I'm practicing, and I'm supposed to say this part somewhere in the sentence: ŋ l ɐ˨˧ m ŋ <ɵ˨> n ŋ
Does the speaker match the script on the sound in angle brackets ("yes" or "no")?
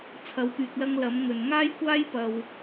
yes